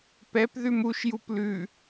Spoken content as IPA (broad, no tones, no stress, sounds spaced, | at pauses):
p ɛ p ð ʉ m u ʃ j u p l ʉ